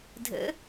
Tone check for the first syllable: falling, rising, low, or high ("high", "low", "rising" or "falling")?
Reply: rising